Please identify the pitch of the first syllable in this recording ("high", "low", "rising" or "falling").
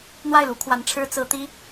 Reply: falling